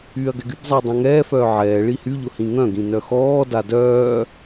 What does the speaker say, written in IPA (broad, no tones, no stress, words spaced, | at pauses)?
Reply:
yːɐ̯ɡɛɡybzˤiː dˤãŋɛːfœː ʕɛː ɭihyʎʊ hĩŋœ̃ɡĩ nœxɔːda dœː